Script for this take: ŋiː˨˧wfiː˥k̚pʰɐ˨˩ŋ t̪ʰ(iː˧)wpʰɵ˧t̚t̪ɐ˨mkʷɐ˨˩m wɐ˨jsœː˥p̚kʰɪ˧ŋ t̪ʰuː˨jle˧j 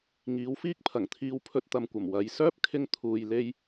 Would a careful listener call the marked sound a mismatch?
no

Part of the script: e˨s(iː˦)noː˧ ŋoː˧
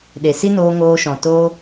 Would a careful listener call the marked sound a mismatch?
yes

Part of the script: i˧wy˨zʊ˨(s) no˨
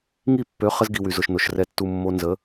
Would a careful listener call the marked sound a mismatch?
yes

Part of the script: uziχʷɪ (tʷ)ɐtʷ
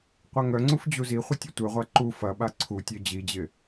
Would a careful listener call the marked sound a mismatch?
yes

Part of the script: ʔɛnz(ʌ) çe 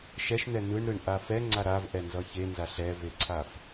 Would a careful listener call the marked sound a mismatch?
no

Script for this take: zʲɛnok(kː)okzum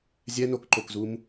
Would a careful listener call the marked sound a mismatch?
yes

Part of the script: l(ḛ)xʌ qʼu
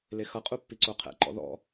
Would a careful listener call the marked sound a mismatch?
yes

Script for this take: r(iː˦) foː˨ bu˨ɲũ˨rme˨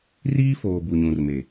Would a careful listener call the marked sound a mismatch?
no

